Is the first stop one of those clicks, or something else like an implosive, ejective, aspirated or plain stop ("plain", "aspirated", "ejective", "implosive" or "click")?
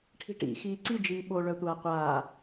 aspirated